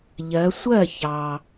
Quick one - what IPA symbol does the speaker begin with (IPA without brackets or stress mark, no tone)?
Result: ʎ